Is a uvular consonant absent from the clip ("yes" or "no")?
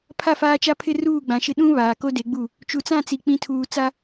yes